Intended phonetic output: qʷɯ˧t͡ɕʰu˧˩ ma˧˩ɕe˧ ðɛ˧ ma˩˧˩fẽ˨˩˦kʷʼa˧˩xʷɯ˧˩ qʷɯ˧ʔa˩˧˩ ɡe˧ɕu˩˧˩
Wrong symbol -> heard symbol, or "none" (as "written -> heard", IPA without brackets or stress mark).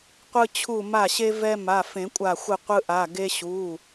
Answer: ð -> v